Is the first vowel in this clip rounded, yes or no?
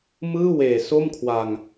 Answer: no